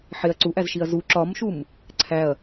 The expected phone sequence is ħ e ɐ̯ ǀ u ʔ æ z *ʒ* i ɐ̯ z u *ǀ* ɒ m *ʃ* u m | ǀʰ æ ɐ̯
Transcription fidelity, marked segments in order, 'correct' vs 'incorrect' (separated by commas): incorrect, incorrect, correct